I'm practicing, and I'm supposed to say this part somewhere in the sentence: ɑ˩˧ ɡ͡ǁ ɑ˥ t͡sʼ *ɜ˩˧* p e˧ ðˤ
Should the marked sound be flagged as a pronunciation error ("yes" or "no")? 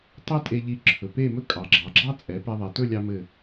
yes